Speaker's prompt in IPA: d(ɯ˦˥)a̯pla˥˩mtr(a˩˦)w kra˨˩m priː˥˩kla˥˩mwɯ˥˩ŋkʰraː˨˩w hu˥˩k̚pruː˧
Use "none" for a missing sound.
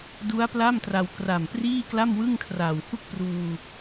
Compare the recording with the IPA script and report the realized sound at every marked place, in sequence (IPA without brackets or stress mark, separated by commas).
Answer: u˦˥, a˧